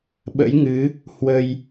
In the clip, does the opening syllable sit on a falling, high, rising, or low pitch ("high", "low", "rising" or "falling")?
rising